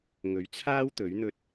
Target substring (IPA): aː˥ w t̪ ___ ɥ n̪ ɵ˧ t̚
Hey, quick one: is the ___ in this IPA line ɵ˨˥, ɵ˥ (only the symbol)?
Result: ɵ˨˥